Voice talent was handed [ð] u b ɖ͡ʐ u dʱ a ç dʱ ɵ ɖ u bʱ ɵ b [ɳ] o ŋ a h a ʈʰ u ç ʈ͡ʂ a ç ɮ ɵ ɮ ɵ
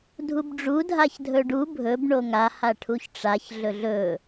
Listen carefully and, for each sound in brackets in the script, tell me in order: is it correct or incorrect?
incorrect, correct

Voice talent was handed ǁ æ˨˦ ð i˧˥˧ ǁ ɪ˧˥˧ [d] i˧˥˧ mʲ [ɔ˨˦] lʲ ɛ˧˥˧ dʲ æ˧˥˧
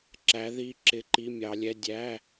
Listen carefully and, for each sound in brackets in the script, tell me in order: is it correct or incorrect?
incorrect, incorrect

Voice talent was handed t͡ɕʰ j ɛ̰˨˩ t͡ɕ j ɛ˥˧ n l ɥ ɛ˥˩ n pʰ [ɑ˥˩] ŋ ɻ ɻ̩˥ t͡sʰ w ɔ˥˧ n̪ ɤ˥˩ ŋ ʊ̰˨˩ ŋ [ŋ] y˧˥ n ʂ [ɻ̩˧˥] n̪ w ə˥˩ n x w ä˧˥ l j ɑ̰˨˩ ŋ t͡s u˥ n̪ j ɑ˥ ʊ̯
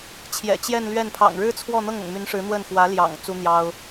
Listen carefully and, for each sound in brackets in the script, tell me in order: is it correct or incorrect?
incorrect, incorrect, correct

